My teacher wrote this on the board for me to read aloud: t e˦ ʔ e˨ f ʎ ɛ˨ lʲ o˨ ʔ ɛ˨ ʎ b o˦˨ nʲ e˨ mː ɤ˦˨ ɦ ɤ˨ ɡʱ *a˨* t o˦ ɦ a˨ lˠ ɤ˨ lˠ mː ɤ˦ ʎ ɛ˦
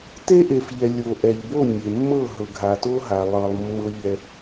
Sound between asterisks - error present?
no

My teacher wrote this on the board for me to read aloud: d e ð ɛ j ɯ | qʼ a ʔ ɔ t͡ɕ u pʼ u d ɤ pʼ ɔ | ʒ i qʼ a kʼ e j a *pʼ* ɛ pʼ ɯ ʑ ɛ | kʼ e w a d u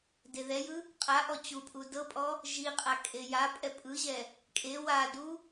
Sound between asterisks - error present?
no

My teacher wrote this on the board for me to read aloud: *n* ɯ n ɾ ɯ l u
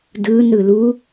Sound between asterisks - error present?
yes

